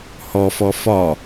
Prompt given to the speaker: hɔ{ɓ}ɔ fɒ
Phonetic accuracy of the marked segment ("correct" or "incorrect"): incorrect